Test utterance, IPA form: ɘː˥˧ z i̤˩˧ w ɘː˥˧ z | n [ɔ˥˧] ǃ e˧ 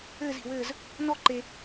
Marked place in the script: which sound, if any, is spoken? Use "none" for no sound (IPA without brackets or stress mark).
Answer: ɔ˥˧